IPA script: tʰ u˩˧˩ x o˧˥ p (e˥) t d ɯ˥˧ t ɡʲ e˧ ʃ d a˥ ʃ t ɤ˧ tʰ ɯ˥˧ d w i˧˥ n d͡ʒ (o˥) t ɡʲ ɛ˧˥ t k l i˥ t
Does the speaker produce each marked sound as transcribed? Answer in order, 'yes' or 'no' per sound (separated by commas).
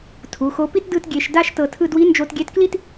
no, no